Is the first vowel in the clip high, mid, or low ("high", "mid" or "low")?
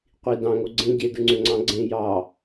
high